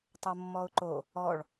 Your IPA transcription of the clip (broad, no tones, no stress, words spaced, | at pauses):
tˤomːɔʊ̯ǃo | ɔɭ